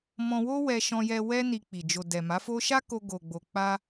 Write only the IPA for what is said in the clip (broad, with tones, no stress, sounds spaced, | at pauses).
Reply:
m ɔ̃˧ w o˦ w ɛ˧ ʃ ɔ̃˧ j ɛ˧ w ɛ˦ n i˧ k͡p i˨ d͡ʒ o˨ d ɛ˨ m a˨˦ f o˦ ʃ a˦ k o˧ ɡ o˨ ɡ͡b o˨ k͡p a˧